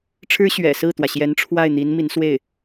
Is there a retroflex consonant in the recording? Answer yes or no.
yes